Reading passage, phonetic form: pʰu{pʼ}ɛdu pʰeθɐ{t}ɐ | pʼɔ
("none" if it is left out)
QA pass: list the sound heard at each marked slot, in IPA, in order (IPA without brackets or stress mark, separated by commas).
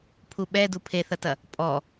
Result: ɓ, t